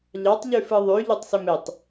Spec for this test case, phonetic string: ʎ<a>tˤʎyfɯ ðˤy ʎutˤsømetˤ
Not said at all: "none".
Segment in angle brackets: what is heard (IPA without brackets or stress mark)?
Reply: ɑ